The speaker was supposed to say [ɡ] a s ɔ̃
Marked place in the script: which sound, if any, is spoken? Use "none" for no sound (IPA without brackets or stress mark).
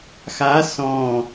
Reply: x